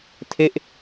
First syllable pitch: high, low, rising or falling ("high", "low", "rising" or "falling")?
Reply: falling